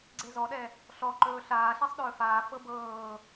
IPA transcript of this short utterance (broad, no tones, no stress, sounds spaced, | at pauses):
ɡ͡ǀ e z ɔ ɗ ɛ | ɬ ɔ ǃ ɵː ɬ aː ɬ ɛ sˤ ɗ ɵː f aː f ɤ b ɤː